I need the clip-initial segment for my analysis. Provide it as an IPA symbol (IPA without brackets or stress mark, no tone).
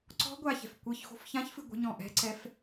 ǀ